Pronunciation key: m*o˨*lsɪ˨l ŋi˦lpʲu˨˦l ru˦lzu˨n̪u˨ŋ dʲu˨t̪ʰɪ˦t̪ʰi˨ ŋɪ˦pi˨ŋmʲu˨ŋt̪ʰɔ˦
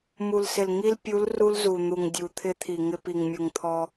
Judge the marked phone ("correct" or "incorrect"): incorrect